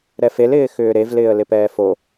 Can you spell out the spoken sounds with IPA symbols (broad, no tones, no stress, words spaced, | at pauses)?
ɾɛfel ɪːxʏːɾev lɪːə̯lɪpɛːfo